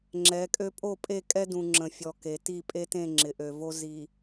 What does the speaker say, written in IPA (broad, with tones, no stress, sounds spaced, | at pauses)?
ŋ͡ǁ ɛ˨˦ kʼ ø˦ pʼ o˦˨ pʼ e˦˨ kʼ ɛ˦ d ũ˨ ŋ͡ǁ ə̃˨ fʲ ɔ˨ k e˨ t i˦˨ pʼ e˦ t ẽ˦˨ ŋ͡ǁ ɪ˨ ʔ ø˨ v o˦ z i˨